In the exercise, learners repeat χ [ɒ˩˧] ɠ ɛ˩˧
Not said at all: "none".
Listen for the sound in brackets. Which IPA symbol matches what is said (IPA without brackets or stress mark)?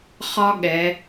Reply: ɒ˥